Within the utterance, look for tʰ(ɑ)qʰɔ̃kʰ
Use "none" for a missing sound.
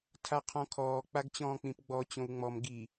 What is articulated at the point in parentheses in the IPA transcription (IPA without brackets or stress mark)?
a